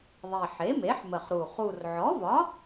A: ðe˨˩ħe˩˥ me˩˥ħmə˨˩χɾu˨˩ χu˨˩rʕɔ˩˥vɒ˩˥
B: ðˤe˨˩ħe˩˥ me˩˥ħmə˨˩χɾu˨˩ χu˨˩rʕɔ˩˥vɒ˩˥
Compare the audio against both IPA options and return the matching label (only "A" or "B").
B